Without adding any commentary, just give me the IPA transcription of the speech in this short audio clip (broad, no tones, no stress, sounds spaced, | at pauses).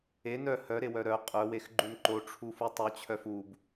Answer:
e n œ h œ ɾ e w œ ɾ œ qʼ œ w e x ɡ͡ǃ u n ǃ o ʈ͡ʂʰ u f u tˤ u t͡ɕʰ œ f u b